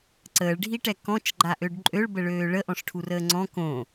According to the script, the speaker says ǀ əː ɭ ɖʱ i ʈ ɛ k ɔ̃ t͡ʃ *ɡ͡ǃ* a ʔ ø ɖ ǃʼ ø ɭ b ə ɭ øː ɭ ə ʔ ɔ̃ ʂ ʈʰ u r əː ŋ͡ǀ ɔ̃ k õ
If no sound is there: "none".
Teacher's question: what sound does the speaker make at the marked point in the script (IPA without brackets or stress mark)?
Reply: ɡ͡ǃ